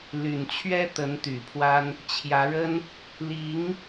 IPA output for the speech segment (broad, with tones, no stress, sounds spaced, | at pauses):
l y˨˩ n t͡ɕʰ ɥ ɛ˥ t̪ ə˧˥ n t̪ y˨˩ pʰ w a˥ n | t͡ɕʰ j ä˧˥ ɻ ə˥ n | l i˧˥ ŋ